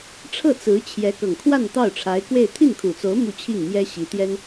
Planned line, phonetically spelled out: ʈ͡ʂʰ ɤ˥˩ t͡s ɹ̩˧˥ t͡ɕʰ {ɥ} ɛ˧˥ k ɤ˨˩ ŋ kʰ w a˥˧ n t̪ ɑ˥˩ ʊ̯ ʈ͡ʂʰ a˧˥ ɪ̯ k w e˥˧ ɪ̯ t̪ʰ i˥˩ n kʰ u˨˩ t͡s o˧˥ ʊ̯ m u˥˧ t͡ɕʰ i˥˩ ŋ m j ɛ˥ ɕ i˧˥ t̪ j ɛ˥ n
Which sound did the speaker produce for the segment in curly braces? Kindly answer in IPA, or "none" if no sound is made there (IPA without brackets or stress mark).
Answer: j